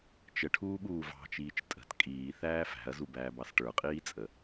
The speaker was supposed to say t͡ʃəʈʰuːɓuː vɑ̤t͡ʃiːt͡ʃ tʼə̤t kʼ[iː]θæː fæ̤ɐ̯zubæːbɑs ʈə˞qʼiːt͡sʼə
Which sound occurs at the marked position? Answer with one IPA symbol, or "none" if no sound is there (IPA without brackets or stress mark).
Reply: iː